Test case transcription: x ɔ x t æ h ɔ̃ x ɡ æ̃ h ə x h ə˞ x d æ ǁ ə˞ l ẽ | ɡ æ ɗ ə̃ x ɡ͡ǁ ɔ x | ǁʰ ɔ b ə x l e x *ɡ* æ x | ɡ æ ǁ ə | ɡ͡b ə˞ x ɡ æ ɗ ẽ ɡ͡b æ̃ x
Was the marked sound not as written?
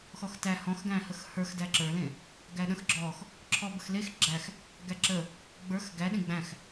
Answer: yes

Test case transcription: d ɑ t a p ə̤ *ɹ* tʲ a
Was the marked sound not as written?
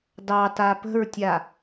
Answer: no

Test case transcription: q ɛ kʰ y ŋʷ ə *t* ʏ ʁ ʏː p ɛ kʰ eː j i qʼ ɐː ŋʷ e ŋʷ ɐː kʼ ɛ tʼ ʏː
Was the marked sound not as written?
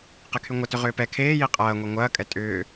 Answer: no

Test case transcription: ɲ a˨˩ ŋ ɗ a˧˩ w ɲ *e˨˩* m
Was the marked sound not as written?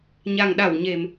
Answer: no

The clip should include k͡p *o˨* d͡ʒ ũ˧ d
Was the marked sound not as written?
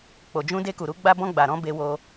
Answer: no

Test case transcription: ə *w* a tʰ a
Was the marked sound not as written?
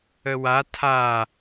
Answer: no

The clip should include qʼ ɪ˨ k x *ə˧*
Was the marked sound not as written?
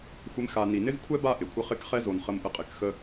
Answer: no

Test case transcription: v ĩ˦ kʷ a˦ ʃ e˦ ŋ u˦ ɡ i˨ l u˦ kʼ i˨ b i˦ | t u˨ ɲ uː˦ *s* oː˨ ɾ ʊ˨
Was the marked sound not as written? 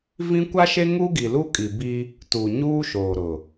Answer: yes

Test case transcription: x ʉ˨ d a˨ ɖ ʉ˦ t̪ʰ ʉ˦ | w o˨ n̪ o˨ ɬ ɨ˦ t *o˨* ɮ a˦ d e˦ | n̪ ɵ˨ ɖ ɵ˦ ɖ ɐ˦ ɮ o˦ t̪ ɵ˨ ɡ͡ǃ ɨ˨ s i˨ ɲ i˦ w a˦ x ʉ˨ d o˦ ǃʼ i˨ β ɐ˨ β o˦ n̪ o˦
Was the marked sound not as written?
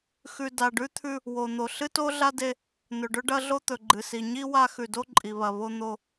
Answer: yes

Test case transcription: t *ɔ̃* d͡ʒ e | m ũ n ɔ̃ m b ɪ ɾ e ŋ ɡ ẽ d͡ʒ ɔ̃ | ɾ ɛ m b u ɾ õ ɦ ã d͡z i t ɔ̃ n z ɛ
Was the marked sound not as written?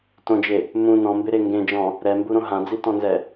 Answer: yes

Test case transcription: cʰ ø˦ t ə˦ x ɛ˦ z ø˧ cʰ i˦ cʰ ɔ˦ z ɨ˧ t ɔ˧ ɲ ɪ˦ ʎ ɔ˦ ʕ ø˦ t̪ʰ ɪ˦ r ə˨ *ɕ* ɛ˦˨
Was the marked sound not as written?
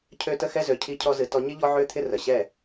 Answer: no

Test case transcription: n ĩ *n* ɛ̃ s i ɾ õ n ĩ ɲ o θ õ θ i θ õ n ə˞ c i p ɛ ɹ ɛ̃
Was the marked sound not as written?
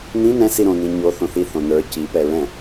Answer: no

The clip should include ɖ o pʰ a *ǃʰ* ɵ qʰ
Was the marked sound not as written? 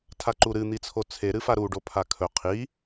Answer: yes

